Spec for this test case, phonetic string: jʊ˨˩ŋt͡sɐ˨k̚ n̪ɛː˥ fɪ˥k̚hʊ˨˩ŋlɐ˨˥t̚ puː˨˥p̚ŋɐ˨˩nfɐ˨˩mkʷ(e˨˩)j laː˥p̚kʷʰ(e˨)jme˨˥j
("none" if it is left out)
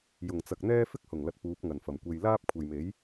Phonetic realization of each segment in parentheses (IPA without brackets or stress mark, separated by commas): e˧, e˨